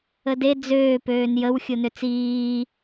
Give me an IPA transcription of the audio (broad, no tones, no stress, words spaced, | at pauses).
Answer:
əde d͡zøː pøːnjəw xʲonøt͡siː